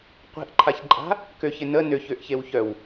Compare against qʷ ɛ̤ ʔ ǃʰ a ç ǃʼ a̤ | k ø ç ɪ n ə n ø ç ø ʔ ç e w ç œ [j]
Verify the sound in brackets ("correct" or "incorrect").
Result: incorrect